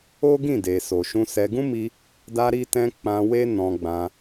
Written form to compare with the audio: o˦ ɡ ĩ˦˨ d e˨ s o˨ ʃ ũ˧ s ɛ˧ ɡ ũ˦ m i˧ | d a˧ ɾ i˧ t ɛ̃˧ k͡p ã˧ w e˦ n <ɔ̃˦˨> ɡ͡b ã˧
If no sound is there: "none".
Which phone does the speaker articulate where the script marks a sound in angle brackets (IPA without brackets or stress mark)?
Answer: ɔ̃˧